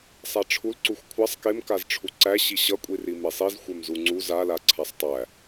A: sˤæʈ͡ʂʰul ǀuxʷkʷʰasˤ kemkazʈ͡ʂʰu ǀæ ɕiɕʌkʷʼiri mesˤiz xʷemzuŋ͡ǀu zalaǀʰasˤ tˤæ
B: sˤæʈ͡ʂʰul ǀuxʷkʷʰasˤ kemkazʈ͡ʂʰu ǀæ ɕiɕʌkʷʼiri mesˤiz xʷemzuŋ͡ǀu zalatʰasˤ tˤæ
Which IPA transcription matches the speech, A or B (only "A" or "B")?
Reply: A